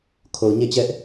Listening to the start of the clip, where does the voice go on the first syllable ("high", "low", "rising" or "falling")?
low